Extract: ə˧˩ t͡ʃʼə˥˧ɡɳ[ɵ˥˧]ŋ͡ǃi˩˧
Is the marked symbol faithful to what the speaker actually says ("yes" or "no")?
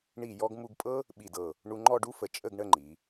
no